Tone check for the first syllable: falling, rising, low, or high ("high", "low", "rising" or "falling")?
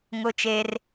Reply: high